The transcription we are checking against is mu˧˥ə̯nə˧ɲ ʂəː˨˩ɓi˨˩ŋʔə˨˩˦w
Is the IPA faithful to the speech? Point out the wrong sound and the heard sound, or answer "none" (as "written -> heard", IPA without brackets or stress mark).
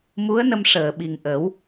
ɲ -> m